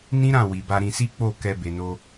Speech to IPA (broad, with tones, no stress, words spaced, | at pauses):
nĩ˦ɾã˦˨ wi˨ba˧ɾĩ˧si˦ k͡po˦˨ kɛ˧ be˨no˧